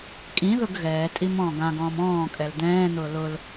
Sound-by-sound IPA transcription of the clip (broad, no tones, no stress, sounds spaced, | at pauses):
kʼ ĩ ð ʊ ɡ ɣ ɛː tʼ i m ɔ̃ː ɡ ã ɡ ɔ̃ː m ɔ̃ː kʼ ɛ l d̪ ɛ̃ː n̪ ʊː l ʊ l